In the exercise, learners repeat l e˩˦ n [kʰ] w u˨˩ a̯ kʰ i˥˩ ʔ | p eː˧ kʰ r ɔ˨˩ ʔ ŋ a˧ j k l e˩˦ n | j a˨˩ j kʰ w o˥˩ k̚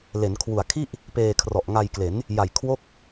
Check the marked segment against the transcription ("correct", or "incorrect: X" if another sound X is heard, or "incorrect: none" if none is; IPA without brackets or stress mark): correct